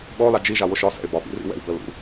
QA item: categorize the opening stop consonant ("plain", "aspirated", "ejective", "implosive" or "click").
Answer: implosive